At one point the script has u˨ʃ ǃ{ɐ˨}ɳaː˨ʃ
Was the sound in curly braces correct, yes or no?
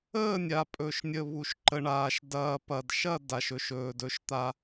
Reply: no